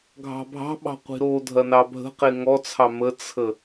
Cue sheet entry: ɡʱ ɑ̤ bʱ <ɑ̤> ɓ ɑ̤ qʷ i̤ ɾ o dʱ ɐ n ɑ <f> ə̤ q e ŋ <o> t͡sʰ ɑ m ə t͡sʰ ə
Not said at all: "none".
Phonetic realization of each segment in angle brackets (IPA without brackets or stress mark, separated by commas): ɑ̤, bʱ, ɔ